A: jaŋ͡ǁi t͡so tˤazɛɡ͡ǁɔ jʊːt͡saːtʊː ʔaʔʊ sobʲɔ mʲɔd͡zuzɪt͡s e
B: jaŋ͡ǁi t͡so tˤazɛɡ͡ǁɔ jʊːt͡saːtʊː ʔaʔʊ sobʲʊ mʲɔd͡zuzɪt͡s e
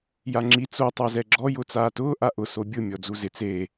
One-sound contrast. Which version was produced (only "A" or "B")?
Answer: B